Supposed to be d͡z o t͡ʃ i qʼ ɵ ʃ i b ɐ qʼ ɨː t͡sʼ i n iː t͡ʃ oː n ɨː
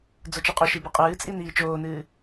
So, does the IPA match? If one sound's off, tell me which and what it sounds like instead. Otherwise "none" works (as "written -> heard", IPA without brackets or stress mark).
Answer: none